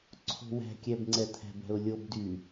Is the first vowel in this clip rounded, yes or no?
yes